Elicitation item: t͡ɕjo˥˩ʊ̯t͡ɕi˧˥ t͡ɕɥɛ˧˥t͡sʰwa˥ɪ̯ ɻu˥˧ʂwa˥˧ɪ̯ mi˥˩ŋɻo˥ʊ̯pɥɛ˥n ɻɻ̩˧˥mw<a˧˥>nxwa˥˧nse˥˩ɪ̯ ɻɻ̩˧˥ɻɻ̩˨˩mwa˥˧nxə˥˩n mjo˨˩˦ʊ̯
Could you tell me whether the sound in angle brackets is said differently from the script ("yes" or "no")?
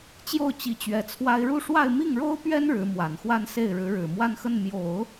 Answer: yes